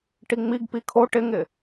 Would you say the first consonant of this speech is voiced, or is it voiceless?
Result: voiceless